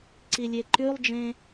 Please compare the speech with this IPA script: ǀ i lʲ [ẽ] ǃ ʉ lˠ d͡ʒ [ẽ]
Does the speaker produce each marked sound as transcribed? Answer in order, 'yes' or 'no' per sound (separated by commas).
no, yes